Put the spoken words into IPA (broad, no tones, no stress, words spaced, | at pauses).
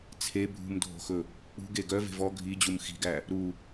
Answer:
t͡sʰe bʱṳmdʱo̤xɵ | k͡pṳɡe ɡœve̤ vɔ ɡʱid͡ʑum xi̤ɡæ | ɾu